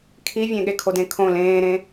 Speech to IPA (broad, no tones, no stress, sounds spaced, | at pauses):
kʰ i vʲ ẽ ɠ e kʰ o d ẽ kʰ õ l ẽː ɾ ẽ